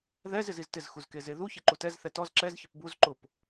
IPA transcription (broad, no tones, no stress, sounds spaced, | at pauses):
ð ɛ z ɪ z i z t ɪ z x u z k e z e ð u ç e ǃ u t ɛ z θ ɛ t ɔ z ǁ ɛ z ç ɪ p b u z ǃ ʊ p